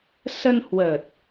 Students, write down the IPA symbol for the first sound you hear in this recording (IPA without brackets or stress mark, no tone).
s